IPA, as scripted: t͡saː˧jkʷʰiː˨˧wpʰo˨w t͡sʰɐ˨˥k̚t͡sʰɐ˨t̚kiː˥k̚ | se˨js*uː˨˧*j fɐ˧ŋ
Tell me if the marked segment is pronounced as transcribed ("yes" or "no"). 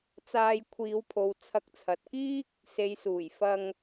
no